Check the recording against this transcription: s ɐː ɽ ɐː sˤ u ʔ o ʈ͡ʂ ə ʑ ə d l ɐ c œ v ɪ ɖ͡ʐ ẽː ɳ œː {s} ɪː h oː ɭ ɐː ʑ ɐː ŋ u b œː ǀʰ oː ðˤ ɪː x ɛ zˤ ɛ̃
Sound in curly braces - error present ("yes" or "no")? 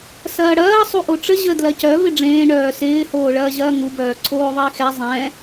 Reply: no